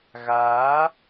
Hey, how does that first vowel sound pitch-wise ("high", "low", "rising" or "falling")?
rising